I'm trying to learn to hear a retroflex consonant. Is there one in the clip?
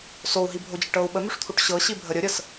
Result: yes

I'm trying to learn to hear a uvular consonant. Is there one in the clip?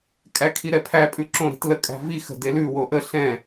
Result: no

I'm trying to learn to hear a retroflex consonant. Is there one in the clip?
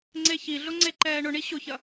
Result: yes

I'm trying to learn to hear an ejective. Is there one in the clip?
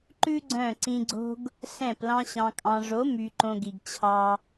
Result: yes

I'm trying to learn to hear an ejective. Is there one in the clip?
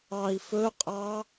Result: yes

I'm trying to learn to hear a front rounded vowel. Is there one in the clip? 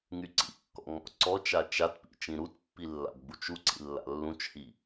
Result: yes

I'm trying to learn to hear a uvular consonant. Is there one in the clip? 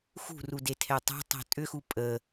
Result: no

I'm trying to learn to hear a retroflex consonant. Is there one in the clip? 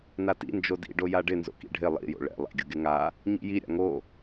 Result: yes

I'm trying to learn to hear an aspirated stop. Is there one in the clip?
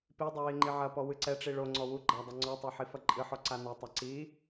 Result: no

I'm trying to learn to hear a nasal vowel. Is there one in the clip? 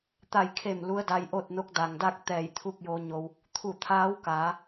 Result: no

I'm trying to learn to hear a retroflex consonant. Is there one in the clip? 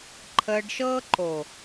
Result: yes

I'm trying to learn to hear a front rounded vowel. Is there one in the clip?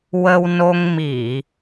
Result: no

